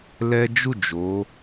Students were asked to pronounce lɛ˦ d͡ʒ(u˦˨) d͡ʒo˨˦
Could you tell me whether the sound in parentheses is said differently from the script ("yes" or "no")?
no